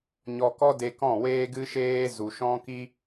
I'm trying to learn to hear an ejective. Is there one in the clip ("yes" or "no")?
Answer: no